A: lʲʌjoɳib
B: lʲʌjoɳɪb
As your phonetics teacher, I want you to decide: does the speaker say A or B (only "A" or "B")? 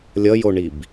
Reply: A